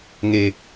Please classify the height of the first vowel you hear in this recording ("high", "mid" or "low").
mid